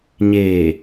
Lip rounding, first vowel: unrounded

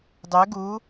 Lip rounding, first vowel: rounded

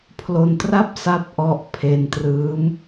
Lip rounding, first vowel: rounded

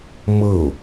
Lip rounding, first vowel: unrounded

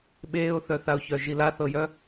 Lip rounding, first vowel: unrounded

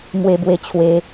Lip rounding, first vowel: unrounded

